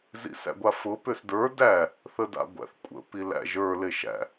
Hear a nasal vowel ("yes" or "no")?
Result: no